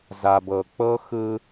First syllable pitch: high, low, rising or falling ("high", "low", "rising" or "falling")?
low